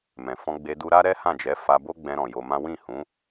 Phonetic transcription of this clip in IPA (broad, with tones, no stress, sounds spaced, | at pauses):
m ɛ̃˨ f ɔ̃˧ ɡ͡b e˧ d u˧ ɾ a˦ ɾ ɛ˦ h ã˦˨ d͡ʒ ɛ˨˦ f a˧ b o˦ ɡ͡b ɛ̃˧ ɾ ɔ̃˨ j o˧ m ã˦ w ĩ˦˨ h ũ˨˦